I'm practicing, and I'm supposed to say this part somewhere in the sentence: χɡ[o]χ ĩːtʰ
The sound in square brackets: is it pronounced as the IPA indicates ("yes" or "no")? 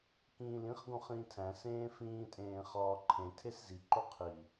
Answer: no